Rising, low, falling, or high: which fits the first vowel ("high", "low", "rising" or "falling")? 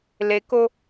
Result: low